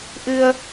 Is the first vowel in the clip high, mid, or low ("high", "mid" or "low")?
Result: high